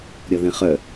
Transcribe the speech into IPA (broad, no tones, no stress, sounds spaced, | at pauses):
ɾʲ ɔ ð ẽ χ œ